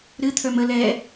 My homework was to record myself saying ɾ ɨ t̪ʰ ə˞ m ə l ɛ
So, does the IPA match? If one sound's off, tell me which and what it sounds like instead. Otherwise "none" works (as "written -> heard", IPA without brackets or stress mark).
none